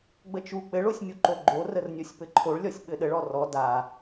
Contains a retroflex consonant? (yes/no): yes